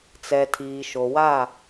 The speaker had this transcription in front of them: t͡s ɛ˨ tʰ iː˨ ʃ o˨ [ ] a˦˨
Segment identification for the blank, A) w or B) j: A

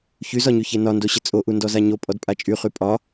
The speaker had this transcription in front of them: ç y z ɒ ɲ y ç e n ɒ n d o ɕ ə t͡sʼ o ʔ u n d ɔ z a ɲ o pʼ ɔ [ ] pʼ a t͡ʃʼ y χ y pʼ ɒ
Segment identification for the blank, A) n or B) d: B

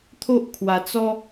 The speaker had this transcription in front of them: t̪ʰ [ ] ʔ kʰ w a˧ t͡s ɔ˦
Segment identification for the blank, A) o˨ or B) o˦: B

